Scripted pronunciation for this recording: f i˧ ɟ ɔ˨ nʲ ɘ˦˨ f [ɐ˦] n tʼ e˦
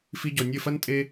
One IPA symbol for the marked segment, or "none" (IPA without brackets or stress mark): ɐ˦